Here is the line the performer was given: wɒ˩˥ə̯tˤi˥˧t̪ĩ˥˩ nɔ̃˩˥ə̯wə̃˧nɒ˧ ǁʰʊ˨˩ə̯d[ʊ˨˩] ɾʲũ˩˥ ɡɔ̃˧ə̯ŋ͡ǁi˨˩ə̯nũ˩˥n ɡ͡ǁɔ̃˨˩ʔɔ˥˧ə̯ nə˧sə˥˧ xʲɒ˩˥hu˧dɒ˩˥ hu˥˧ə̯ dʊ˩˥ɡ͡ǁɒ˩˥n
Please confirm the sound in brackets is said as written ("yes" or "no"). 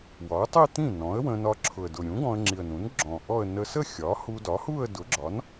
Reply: yes